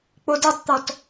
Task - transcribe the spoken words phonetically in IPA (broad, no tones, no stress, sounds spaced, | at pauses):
k͡p o d e tˤ t̪ ɔ t